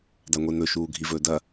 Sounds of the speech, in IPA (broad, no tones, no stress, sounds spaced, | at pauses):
d a ŋʷ e n̪ ɵ ʃ uː ɡʱ i v ɵː d ɐ